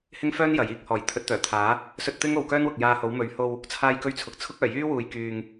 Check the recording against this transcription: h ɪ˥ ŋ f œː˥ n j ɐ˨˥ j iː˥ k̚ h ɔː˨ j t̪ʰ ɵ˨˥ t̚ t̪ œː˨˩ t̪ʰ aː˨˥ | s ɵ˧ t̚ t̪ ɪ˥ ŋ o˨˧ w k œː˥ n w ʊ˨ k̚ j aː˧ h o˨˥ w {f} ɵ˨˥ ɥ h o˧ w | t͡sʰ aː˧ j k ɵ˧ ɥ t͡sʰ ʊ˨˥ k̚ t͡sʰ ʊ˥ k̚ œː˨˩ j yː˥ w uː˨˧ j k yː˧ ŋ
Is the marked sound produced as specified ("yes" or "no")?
no